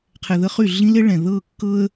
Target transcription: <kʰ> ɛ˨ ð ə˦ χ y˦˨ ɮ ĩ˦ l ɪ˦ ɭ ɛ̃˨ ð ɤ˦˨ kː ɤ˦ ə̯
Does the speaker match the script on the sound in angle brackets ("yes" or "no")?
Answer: no